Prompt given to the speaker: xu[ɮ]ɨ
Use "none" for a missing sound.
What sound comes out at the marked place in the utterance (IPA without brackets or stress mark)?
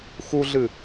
ɮ